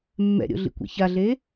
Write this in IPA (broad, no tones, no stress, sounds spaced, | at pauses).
mː ɛ̰ ɾʲ o̰ ɮ ḭ kʷ ɛ̰ ç a ɮ e